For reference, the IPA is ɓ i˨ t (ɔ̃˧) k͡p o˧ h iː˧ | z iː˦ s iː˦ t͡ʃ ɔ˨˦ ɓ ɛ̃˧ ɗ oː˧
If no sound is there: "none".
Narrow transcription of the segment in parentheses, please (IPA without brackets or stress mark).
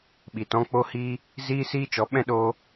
ɔ̃˧